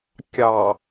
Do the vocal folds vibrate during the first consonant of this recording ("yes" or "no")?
no